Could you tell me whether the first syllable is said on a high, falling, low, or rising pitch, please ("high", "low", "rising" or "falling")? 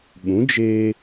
rising